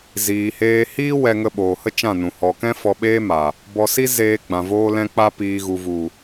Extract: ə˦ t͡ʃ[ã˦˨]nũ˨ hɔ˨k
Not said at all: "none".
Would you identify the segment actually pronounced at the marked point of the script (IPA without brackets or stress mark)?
ã˦˨